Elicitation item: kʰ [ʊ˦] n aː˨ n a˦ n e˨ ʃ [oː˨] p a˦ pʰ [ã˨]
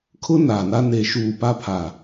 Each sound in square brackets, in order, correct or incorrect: correct, incorrect, incorrect

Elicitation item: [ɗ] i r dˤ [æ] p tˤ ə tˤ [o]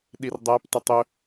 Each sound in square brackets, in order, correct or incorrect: correct, correct, incorrect

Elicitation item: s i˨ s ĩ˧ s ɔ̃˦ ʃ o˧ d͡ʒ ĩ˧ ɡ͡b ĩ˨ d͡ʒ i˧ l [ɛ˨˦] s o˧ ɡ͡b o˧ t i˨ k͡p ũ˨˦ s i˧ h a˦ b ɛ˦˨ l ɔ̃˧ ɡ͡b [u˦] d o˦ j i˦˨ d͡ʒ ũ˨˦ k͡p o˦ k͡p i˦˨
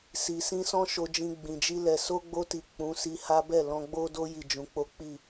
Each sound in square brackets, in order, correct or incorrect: incorrect, incorrect

